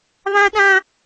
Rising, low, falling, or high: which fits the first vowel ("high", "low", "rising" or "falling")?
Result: high